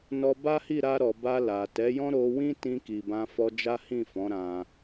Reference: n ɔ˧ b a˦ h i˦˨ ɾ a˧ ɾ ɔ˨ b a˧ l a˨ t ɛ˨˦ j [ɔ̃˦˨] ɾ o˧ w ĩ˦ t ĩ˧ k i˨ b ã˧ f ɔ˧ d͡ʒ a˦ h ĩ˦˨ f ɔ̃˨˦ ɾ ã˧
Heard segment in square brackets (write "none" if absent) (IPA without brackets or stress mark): ɔ̃˦